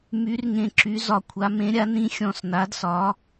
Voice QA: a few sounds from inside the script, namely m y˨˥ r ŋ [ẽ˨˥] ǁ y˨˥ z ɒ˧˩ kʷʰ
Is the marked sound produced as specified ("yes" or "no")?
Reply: no